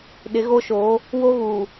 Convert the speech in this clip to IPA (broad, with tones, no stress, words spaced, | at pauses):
ɗɪ˨˦ɣo˦ʃoː˨˦ | wo˦ɣuː˨